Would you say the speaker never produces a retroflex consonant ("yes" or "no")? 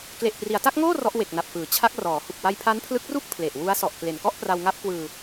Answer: yes